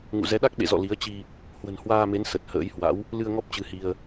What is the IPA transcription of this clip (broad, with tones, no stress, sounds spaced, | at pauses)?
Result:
ŋ ṵ˧˨ z ɛ˨˦ ɗ a˦˥ k̚ ɓ ḛ˧˨ z ɔ̰˧˨ l i˨˦ ə̯ t͡ɕ i˧ | h w ə̤˨˩ n h w aː˧ m e˨˦ n s ə˨˩ t̚ h ə̰ː˧˥ j h w a̰˧˥ w | l ɨ˧ ə̯ ŋ ɔ˦˥ p̚ t͡ɕ ɨ˧ h i˧ ə̯